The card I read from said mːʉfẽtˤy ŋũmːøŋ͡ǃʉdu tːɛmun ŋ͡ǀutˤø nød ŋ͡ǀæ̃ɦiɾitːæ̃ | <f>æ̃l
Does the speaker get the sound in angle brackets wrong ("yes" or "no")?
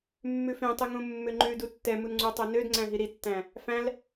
no